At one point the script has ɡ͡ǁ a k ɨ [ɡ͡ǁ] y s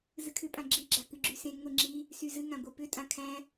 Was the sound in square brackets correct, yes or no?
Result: yes